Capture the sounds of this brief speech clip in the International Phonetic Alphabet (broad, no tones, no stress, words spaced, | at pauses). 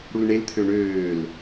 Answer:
ɽulɳelt̪ʰø ɳøːl